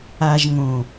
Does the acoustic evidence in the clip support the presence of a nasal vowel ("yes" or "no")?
yes